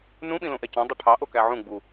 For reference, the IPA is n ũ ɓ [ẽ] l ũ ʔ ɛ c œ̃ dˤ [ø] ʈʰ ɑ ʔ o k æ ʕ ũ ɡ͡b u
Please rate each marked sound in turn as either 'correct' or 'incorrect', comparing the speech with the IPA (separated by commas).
incorrect, correct